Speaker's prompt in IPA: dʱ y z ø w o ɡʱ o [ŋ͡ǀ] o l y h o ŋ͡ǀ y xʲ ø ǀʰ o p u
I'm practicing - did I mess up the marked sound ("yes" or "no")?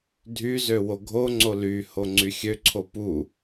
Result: no